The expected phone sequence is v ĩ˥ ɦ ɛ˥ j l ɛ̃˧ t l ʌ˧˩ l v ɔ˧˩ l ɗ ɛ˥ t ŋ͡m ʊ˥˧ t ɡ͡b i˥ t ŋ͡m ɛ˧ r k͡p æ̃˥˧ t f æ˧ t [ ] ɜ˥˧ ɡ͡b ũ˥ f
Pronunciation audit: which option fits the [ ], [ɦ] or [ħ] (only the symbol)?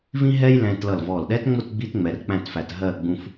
ɦ